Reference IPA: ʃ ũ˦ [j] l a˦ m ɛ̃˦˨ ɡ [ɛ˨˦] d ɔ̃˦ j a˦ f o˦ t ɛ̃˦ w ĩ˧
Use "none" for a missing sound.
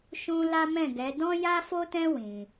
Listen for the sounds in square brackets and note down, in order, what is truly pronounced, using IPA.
none, ɛ˨˦

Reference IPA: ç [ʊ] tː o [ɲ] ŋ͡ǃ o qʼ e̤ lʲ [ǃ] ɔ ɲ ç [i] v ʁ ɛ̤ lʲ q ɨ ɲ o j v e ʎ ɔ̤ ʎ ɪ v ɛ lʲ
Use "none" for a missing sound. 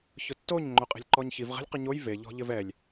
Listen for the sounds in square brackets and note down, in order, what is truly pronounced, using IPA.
ʊ, ɲ, ǃ, i

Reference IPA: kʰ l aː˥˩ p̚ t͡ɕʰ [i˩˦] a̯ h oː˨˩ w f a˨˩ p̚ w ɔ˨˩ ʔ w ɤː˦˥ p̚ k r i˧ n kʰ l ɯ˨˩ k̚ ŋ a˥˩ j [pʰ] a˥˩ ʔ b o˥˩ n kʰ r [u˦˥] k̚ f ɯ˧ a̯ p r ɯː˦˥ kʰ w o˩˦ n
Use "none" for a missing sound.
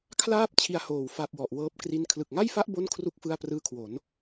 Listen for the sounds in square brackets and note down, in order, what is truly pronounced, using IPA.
i˧, f, u˦˥

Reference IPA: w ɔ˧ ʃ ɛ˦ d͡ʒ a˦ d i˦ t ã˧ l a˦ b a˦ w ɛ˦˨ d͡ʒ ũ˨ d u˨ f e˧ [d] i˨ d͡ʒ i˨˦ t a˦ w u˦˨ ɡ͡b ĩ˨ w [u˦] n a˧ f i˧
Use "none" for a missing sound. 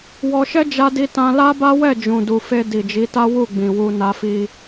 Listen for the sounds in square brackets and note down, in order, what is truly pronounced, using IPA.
d, u˧

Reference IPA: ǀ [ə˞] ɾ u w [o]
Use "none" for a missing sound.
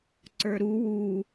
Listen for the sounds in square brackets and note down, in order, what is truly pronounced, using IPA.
ə˞, u

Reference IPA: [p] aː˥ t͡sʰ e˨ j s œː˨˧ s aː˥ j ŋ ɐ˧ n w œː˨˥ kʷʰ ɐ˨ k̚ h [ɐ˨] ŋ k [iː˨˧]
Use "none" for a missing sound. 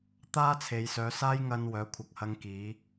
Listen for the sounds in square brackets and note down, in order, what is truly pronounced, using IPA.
t̪, ɐ˧, iː˨˧

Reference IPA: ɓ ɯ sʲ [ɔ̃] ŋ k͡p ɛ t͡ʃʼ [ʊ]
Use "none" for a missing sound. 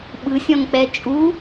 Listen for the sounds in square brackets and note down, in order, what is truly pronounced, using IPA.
ɔ̃, u

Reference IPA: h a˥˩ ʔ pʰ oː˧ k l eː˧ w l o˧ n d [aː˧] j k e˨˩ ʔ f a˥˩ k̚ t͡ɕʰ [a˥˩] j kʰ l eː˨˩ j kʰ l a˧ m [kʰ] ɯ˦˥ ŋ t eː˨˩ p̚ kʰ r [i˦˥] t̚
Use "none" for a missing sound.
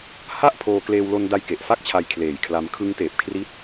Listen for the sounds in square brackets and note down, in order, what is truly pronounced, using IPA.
a˧, a˧, kʰ, i˦˥

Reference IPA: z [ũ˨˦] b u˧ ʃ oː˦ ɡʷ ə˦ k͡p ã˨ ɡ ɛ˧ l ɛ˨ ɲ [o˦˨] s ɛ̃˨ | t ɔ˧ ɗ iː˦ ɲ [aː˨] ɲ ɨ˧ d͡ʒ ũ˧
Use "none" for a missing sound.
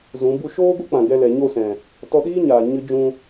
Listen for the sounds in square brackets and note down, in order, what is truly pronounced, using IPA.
ũ˨˦, o˦˨, aː˨

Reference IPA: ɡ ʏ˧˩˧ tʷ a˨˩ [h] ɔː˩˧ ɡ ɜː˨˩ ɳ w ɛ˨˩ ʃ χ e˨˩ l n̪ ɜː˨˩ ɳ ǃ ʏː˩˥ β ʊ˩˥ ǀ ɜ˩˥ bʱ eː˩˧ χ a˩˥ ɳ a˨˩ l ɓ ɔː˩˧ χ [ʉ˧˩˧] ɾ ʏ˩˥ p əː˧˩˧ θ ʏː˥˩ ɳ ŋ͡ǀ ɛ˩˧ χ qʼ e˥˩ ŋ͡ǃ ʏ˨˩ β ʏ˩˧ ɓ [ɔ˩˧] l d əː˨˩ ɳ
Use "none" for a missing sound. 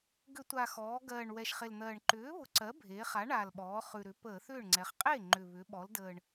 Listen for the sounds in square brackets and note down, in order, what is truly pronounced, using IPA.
x, ʉ˨˩, ɔ˩˧

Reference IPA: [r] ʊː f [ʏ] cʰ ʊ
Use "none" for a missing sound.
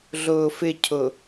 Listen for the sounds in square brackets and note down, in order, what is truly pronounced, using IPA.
ɮ, ɪ

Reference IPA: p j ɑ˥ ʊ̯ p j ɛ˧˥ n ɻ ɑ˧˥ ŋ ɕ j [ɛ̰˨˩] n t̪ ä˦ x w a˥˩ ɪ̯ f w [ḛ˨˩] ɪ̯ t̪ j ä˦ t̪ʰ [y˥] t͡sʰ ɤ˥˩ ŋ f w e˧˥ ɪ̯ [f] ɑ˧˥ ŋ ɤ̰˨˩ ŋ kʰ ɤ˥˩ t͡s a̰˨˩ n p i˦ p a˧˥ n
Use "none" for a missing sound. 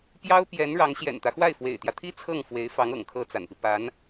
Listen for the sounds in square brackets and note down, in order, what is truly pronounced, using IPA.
ɛ̰˨˩, ḛ˨˩, i˥, f

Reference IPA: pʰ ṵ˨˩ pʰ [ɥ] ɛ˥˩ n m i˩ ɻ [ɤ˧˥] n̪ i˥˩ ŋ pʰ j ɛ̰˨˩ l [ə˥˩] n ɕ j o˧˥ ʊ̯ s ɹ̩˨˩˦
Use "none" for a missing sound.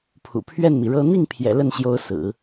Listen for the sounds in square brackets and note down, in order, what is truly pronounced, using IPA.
ɥ, ɤ˥, ə˥˩

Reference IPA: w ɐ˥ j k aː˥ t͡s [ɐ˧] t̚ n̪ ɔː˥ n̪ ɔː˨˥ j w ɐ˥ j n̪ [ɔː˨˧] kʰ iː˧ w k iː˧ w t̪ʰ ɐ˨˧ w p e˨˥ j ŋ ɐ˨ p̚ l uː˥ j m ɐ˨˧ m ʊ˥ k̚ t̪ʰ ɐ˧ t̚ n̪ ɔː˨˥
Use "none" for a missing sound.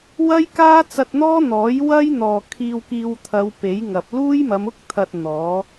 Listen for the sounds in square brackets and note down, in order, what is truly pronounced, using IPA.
ɐ˧, ɔː˨

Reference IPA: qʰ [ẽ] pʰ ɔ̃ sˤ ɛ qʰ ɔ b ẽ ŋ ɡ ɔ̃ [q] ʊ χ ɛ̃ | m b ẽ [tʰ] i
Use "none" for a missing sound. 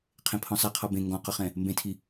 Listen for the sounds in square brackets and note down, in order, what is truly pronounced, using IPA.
ẽ, q, tʰ

